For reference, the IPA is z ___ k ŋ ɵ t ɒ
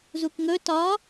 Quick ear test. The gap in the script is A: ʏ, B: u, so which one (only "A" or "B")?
B